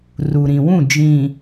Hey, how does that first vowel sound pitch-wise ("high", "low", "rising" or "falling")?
low